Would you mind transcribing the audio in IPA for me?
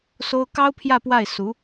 s o˥ ʊ̯ k ɑ˥ ʊ̯ pʰ j ä˥˧ p w a˥˩ ɪ̯ s u˧˥

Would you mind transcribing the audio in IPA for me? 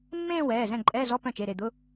mː ẽː˥˧ w ɛː˩˧˩ z ɛ̃˥˩ ǃʼ ɛː˧˥˧ z ɔ˧˥˧ p œ̃˥˩ t͡ʃ e˩˧˩ ɾ e˥˩ d̪ ʊ˧˥˧

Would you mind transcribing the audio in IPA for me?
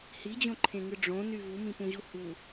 h i d͡ʑ õ ǃʰ ẽ ŋ ɯ ɖ͡ʐ õ n y v u m ĩ p ũ ʑ u h u

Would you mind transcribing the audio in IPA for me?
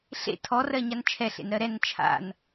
ɬ ḛ tʰ ɔ r ɜ ɲ a n t͡ʃʰ ɛ ɬ ḛ n ɾ ɜ ɾ ɛ n t͡ʃʰ a̰ n

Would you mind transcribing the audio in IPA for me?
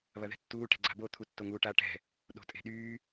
β ɐ ð ɛ̤ tː uː ʈ ɛ̤ ɡ͡ǀ a̤ b o t̪ʰ u tː o ŋ uː ʈ a ʈ ɛ̤ | ɗ o̤ tʼ e̤ ɗ yː

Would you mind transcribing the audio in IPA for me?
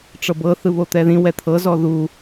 ʈ͡ʂ ɤ b ɤ θ ɯ β o t̪ ɛ ð ĩ w ɛ t̪ʰ ɤ z ɔ ð u

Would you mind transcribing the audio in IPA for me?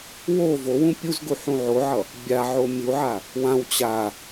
w o v o w ũ pʲ u z ɡ u ħ ũ ʕ o ʕ ʌ | bʲ a ʕ o mʲ u ʕ a | w ã w t͡ɕ a

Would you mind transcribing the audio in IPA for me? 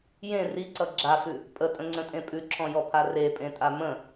j ẽ r i ǀ ʌ ɡ͡ǁ a f ʉ | pʼ ə tʼ ə̃ ŋ͡ǀ ə̃ tʼ ẽ pʼ ʉ ǁʰ ɔ̃ j ɔ pʰ a r e pʼ ẽ tʼ a m ə̃

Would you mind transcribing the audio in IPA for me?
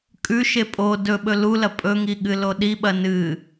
kʼ ʉ ʃ e pʼ o d ɵ ɓ ɵ l u l ɐ pʼ ɵ ŋ i ɠ ɨ l o ɗ i ɓ ɐ n ɨ

